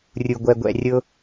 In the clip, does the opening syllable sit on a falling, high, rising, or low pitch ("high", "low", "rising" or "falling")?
low